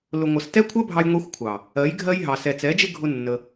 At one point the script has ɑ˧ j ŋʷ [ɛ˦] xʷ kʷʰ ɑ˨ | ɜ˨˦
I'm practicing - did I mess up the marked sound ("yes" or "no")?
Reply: no